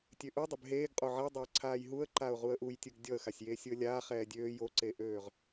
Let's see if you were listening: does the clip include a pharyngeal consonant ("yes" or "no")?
yes